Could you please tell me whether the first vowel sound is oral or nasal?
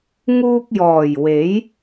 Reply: oral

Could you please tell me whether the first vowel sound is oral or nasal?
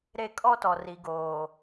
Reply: oral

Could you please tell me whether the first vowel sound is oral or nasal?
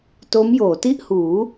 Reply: oral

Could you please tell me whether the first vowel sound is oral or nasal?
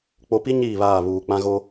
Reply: oral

